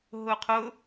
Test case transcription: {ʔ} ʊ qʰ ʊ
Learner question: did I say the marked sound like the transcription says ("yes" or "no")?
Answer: no